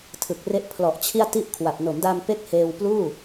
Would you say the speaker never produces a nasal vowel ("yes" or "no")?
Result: yes